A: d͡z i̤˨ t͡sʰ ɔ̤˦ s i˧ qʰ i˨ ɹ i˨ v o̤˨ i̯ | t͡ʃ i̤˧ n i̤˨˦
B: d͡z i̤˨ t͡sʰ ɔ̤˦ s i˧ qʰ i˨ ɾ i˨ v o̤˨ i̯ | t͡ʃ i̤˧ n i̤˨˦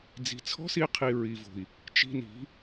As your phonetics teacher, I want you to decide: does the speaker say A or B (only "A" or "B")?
A